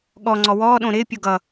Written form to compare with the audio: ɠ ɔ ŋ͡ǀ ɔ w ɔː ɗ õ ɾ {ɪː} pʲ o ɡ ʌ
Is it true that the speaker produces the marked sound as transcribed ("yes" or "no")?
yes